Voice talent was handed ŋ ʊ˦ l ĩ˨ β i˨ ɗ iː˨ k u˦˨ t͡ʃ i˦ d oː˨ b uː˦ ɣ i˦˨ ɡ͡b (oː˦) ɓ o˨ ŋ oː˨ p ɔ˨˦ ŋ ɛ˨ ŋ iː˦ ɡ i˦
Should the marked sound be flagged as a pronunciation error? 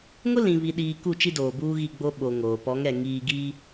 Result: yes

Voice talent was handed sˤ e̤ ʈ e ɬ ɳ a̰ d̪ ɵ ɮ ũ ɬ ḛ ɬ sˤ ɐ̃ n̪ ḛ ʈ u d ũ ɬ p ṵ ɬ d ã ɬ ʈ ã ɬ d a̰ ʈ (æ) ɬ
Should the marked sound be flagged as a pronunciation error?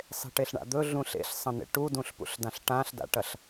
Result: yes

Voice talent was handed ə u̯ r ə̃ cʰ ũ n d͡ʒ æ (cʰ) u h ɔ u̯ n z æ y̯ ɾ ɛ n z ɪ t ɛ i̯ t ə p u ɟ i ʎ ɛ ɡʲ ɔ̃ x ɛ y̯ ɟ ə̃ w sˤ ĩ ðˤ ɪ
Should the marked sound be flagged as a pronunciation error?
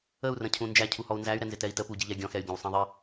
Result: no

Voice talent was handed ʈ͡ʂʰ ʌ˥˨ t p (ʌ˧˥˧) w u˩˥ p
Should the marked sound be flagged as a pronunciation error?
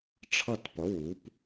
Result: yes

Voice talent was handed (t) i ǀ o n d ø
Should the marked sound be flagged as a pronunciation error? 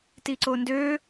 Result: no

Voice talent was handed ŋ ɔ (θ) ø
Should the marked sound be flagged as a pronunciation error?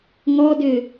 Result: yes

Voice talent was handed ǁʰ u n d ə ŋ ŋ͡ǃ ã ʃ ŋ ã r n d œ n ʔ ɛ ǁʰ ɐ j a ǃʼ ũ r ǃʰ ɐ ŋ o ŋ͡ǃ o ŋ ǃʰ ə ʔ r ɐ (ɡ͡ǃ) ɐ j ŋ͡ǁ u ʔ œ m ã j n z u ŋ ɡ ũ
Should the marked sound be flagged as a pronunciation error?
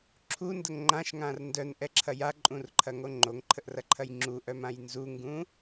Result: yes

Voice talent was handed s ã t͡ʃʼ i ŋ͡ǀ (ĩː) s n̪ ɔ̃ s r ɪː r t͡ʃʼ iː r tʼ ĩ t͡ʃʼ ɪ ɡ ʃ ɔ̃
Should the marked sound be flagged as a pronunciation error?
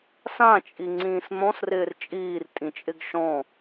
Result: no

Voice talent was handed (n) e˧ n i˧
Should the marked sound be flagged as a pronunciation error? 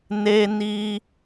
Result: no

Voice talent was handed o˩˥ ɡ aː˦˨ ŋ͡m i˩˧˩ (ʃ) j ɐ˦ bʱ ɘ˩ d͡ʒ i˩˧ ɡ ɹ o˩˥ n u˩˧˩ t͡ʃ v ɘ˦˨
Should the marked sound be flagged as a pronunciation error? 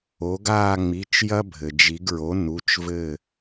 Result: yes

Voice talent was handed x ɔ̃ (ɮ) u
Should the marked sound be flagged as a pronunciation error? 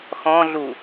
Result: no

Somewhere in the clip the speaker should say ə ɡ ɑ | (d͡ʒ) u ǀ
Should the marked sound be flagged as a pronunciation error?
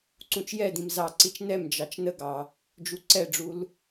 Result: no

